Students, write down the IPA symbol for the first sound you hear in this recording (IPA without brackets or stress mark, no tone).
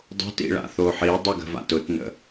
dˤ